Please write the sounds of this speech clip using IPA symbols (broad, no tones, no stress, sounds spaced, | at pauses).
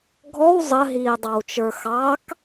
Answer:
ɡʱ ɔ w zˤ ə ɦ iː dˤ ɑ w t͡ʃ ə˞ x ɑ k